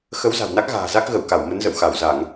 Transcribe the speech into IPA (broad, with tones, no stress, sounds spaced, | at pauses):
x ə˨˦ w z a̤˨˩ w n a˦˥ k̚ ɣ a̤ː˨˩ z a˦˥ k̚ ɣ ə˧˩ w k a˧˩ w m ə˨˦ n z ə̰˧˨ w x a˧˩ w z a˧˩˨ ŋ